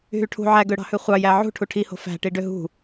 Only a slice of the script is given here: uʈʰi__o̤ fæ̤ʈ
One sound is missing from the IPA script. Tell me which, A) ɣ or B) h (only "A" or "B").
B